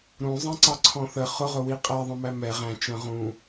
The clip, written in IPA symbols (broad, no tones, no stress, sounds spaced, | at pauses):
ɾ ũ zˤ ɛ̃ ǀ ɑ ǀʰ ɔ̃ θ ə χ ʊ ʁ ʊ w i qʼ æ ðˤ ə̃ m æ m ɛ ʁ æ̃ t͡ʃ ə̃ ʁ ũ